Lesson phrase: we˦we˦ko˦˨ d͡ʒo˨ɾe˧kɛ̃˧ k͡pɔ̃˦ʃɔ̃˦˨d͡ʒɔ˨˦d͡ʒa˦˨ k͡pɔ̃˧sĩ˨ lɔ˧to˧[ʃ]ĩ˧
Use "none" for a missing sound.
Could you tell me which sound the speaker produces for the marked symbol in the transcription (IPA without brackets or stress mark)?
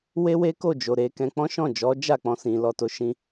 ʃ